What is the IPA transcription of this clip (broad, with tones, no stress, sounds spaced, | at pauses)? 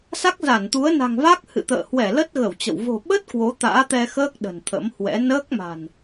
s a˦˥ k̚ z a˧˩ n t̪ u˨˦ ə̯ n a̤˨˩ ŋ v a˦˥ k̚ h ɨ̰˧˨ t̪ ə̰ː˧˨ h w ɛ˧˩ l ə˦˥ t̚ ɣ ə˧˩ w t͡ɕ ə̰˧˨ w v o̤˨˩ ɓ ə˦˥ t̚ k w o˨˦ t̪ a̰ː˧˥ t̪ ɛ˧ x əː˦˥ k̚ ɗ ə̤˨˩ n t̪ʰ ə̰˧˥ m h w ɛ̰˧˥ n əː˦˥ k̚ m a̤˨˩ n